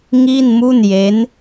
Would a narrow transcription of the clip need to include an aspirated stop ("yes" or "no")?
no